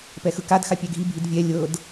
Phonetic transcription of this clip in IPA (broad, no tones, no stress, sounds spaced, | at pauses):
p ɛ x ɯ k a d x a pʲ ɛ ɡʱ i bʱ i d vʲ ɛ lʲ ɤ d